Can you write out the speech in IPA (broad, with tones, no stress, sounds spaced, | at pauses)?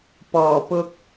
p ɔː˨˩ p ʊ˧ k̚